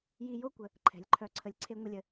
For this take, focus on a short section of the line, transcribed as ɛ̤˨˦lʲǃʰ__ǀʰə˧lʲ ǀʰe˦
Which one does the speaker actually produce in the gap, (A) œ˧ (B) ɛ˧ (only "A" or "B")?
A